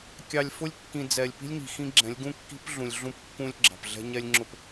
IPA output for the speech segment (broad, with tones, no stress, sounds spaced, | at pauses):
kʲ ɑ˨ lʲ f ʊ˦ lʲ kː ĩ˨ d͡z ɛ˨ lʲ p i̤˦ lʲ ɲ i̤˨ x ĩ˦ ɡ͡ǁ ɛ̃˨˦ lʲ ɡ ũ˦ kː i̤˦ p ɮ ũ˨ lʲ ɮ ũ˦ p kː ũ˦ lʲ ɡ͡ǁ ɑ̤˨ p ɮ ɛ̤˦ ɲ ɛ˦ lʲ ŋ͡ǁ ʊ˦˨ p